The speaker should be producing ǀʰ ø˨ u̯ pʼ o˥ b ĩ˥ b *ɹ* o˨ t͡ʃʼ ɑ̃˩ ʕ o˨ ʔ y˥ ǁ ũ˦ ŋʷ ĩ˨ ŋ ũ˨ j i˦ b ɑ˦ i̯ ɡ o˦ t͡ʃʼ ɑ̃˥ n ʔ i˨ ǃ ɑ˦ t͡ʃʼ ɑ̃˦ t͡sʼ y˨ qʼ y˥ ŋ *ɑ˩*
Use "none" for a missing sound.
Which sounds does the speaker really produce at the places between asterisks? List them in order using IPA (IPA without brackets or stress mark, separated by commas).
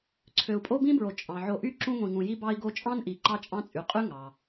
ɹ, ɑ˩